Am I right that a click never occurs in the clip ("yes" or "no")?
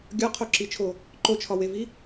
no